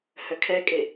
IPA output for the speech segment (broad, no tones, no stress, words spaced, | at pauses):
hœkʰɛkʼe